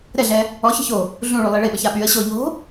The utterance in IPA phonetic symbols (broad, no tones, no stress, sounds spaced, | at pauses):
ɾ ɛ ɮ ɛ | ɔ ç ə̤ ç o | ɮ ũ ɭ y lˠ i ɭ e ɓ ə ç a ɓ y ə̯ ɕ o ʎ o̤